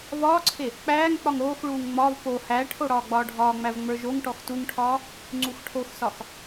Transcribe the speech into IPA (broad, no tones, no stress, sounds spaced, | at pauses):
v ɒː ǀʰ e | k͡p æː ŋ k͡p ɒ ŋ ɾ oː x ɭ uː ŋ ŋ͡m ɒ v p o h æ ʈʰ o ɽ ɒː ɡ͡b ɒː ɖʱ ɒː ŋ͡m æ v ŋ͡m ə˞ ʒ o ŋ ʈ ɔ x t u ŋ ʈʰ ɒː | ŋ͡ǀ u x ʈʰ o x s ɒ x